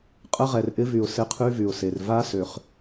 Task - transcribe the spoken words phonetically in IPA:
qʼ ə˦˥ ʁ ɛ˨ r ʔ ɪ˦˥ v y˨ ʊ̯ s ɪ˦˥ qʰ y˦˥ v y˨ ʊ̯ s e˨ r v a˦˥ s ø˨ χ

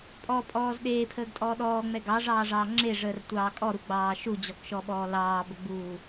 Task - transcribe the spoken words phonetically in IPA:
pʼ ɔ pʼ ɔː z ɗ eː pʰ əː ɡ tʼ ɔː ɗ ɔː ŋ͡m ɛ ɡ ɑ ʐ ɑː ʐ ɑː ŋ͡ǁ e ʐ əː r tʷ ɑː kʼ ɔ ɾ u ɡ͡b ɑː ʃ u d͡ʑ ɔ k ʃ ɔ ɓ ɔː l ɑː b ə ɡ͡b uː

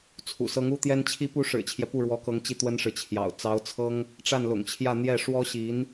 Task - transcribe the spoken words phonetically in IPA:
t͡sʰ ṵ˨˩ s ɤ˧˥ ŋ u˥ t̪ j ɛ˥ n t͡ɕʰ i˧˥ p u˧˥ ʂ ɻ̩˨˩ t͡ɕʰ j ɛ˦ p u˥˩ ɻ w ɔ˧˥ k ɤ˧˥ ŋ t͡ɕ i˥˩ t̪ w ə˥ n ʂ ɻ̩˨ t͡ɕʰ j ɑ̰˨˩ ʊ̯ t͡s ɑ˧˥ ʊ̯ t͡sʰ ɤ˥ ŋ | ʈ͡ʂ a˥˩ n l ʊ̰˨˩ ŋ t͡ɕʰ j ä˥˧ n̪ j ɛ˥˩ ʂ w ɔ˥ ɕ i˧˥ n

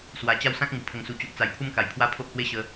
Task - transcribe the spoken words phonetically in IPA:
s w a˧ t͡ɕ a˦ w s ã˦ k̚ ŋ u˨˩ pʰ ə˧ ŋ s u˧ t͡ɕ o˦ ʔ t͡s a˧ j pʰ u˦ m k a˨˩ j pʰ w a˦ pʰ o˦ ʔ h w e˦ ɕ ə˧

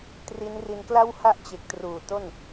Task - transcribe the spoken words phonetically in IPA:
t r i˦˥ n r i˧ n k l a˥˩ w h a˥˩ ʔ t͡ɕ e˨˩ k̚ t r uː˨˩ t o˥˩ n

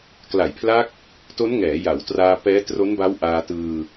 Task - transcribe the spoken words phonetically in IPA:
k l a˨˩ j pʰ l a˦˥ k̚ | t o˦˥ n ŋ ɛː˩˦ j a˩˦ w t r aː˧ p ɛː˦˥ t r o˦˥ n b a˦˥ w ʔ aː˧ t ɯː˧

